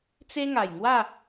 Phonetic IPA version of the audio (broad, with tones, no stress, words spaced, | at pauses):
t͡se˦ŋa˨˩jŋwa˥˧